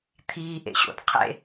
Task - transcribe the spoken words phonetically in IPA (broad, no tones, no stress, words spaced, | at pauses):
t̪ʰiːʔḛɕo̰d qʰḛ